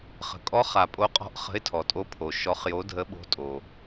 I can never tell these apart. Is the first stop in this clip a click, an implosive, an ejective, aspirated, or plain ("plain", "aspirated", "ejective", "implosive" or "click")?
ejective